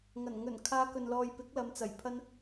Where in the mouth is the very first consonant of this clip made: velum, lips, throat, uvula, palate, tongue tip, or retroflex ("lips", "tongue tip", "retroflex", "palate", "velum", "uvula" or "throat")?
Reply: velum